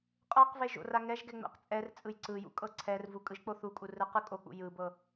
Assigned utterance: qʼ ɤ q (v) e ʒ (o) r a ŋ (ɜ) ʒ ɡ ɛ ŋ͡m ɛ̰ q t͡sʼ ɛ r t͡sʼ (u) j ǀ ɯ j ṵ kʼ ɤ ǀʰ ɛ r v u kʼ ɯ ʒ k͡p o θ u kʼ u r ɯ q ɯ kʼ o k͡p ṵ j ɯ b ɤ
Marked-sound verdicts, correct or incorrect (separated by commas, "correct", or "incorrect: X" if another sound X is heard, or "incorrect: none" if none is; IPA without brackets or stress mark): correct, incorrect: o̰, incorrect: ɛ, incorrect: ɯ